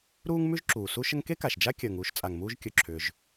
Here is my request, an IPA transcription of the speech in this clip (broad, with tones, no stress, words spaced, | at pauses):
ɾuː˥ŋmʉ˥ʒǁuː˩ su˥ʃə˥ŋ ke˥ka˩ʃd͡ʒa˥ kʲəː˩ŋ uː˥ʃt͡sʼa˩ŋmuː˥ʒ kʲɵ˩ǁʰʏː˩ʒ